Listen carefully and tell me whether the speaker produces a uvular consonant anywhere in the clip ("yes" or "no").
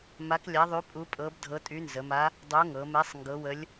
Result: no